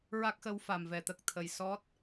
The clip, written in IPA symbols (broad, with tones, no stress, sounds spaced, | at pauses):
ɹ a˦˥ k̚ x ə˧˥ w f a˨˩ m v ɛ˨˩˨ t̪ ə˨˩ k̚ t̪ʰ ə˨˩ j s ɔ˦˥ t̚